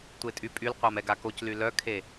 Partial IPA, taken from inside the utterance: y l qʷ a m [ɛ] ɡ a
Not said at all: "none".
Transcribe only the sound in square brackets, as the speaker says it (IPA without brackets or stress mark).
ɛ